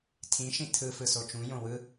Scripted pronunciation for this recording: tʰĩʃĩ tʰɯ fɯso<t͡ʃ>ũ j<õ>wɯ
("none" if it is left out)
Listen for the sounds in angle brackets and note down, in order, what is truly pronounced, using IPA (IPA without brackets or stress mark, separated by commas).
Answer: t͡ʃ, õ